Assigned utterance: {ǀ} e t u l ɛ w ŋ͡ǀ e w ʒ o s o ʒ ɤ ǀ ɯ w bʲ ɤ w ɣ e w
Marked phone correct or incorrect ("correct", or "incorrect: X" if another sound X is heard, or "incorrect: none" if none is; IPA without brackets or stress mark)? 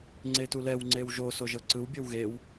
incorrect: ŋ͡ǀ